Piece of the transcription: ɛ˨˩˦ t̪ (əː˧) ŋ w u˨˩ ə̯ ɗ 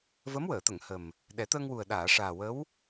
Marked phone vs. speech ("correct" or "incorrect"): correct